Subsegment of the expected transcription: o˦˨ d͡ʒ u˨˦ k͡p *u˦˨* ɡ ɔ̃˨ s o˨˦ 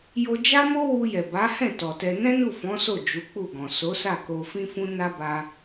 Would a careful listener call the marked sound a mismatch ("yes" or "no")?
no